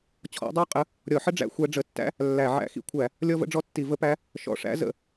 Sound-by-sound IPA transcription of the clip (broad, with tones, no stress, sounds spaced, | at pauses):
t͡ɕʰ ɔ̰˧˥ dˤ æ˥ qʼ ə˧˥ | ɾʲ ɔ˧˩˧ ħ ə˥ ɖ͡ʐ æ̰˧˥ xʷ æ˧˥ ɖ͡ʐ ə˧˩˧ tː æ̰˥ | lː æ˧˩˧ ʕ æ̰˧˥ x ḭ˧˥ kʷʰ æ˧˩˧ | lʲ ɔ˥ v ə̰˥ ɖ͡ʐ ɔ˥ tː i˧˩˧ v ə˧˥ p æ˧˥ | ʃ ɔ̰˧˩˧ ʂ æ̰˧˥ z ə̰˧˩˧